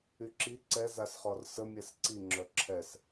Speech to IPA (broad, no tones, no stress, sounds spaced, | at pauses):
y ǁ i ǀ ɛ z a s χ ɔ r s ə mʲ ɛ s ǀ i ŋ͡ǁ œ ǁʰ ɛ s